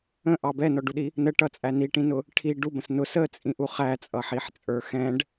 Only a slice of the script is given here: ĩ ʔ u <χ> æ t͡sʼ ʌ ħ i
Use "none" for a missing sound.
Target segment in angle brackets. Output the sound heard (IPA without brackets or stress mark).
χ